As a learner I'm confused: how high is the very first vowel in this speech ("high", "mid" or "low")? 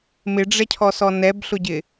high